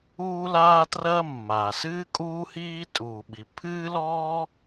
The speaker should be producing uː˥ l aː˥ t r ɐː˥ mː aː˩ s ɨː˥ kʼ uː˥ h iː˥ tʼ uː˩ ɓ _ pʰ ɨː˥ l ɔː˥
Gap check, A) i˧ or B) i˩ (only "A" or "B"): B